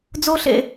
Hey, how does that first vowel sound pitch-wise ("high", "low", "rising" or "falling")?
high